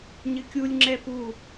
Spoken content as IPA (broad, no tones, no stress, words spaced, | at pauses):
ɲɘkʲulʲ ŋ͡ǁɛpu